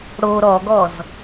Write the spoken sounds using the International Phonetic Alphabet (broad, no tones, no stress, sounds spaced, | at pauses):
ɽ o ɾ ɔ ɡ ɔ z